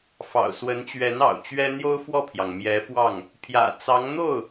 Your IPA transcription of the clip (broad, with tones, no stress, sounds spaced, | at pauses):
f ɑ̰˨˩ ʊ̯ s w ə˧˥ n t͡ɕ ɥ ɛ˧˥ n ɑ̰˨˩ ʊ̯ t͡ɕ ɥ ɛ˥ n̪ j o˥ ʊ̯ f w ɔ˥˩ pʰ j ɑ˩ ŋ m j ɛ˧˥ f w ɑ˥˩ ŋ | pʰ j ä̰˨˩ t͡s ɑ˧˥ ŋ n̪ o˥˩ ʊ̯